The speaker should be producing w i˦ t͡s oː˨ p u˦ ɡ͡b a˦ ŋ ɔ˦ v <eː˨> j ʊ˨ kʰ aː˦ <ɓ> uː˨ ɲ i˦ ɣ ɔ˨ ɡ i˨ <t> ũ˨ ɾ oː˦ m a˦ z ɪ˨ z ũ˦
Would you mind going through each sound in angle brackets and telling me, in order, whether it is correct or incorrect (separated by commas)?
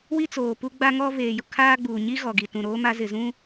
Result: correct, incorrect, correct